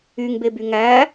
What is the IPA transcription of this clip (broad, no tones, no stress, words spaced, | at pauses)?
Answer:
yŋbeby ŋæ